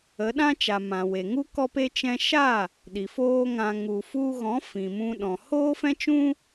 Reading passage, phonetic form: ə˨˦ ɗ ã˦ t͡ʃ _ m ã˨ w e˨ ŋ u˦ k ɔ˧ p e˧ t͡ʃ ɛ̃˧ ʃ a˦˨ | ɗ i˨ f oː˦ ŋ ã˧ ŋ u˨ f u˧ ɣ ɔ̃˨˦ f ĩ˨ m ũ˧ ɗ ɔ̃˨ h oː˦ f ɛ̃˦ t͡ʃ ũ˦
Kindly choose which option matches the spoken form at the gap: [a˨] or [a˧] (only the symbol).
a˨